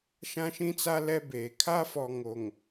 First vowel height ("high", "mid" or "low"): low